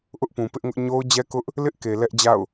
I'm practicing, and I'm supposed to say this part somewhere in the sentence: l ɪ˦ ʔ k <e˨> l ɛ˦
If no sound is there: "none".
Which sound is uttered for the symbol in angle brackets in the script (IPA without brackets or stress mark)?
e˨